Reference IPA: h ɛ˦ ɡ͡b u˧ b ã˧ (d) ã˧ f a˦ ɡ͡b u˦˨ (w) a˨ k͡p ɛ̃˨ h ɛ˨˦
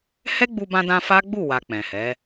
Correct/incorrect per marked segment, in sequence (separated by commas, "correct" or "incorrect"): correct, correct